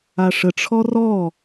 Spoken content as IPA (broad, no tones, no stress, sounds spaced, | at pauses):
a ʂ ə ʈ͡ʂʰ ɔ r ɔ